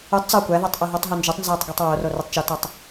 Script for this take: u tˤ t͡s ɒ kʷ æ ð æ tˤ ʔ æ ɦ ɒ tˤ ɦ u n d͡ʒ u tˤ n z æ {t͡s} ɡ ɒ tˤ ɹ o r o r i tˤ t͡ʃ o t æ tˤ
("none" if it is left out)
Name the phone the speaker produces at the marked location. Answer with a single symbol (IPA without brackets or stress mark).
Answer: tˤ